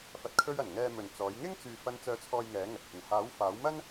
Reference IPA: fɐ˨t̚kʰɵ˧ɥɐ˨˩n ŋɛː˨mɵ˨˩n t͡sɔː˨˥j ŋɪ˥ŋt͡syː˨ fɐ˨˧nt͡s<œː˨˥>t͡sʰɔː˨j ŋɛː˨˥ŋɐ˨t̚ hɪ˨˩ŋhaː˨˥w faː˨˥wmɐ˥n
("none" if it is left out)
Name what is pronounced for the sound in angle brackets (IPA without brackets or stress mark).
œː˨˥